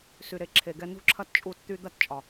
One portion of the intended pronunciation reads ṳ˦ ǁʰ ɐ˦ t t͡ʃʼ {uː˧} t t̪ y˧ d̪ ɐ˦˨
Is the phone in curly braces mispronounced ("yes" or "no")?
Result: no